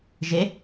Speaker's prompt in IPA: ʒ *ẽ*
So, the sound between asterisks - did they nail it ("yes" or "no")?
no